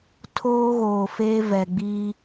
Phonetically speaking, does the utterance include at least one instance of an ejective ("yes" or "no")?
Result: no